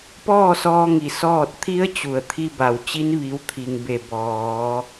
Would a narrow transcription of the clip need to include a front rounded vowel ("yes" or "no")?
no